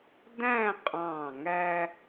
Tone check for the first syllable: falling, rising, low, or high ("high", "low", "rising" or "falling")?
falling